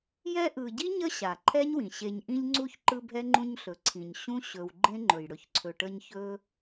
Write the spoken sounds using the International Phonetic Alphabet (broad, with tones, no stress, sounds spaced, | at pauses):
j ɛ˦ ʔ ɯ˨ ɟ i˥ ɲ ə˦ ɕ a˩ ǃʰ ɛ˥ ɲ w ĩ˩ ɕ e˨ ɲ ʔ ĩ˦ ʎ ŋ͡ǀ u˥ ç ǃ ɯ˦ bʱ ɛ˥ ŋ͡ǃ ũ˦ ɲ ɬ ɵ˩ ǀʰ ĩ˩ ɲ ɕ ũ˥ ɕ ɵ˨ w ɡ͡ǃ ẽ˥ ŋ͡ǃ ɵ˩ j ɽ ɵ˨ ç ǀʰ ɵ˨ ʈ ə˦ ɲ ç ɵ˥